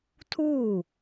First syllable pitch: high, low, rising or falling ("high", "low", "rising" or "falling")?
falling